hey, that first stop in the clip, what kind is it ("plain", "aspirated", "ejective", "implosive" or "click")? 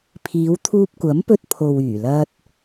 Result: aspirated